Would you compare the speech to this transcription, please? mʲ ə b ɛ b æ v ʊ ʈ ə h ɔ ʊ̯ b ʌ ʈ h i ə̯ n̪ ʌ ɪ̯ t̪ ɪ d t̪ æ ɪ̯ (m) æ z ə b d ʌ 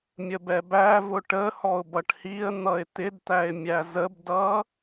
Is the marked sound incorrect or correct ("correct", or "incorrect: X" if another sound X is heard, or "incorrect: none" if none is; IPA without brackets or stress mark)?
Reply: incorrect: mʲ